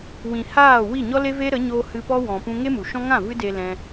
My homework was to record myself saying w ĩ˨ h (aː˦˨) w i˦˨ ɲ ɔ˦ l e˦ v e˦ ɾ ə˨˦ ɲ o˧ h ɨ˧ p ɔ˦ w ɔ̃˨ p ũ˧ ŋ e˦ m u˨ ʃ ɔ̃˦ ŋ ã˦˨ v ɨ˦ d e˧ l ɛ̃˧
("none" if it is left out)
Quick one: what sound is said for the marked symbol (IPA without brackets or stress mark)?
aː˦˨